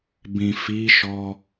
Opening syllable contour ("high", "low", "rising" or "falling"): low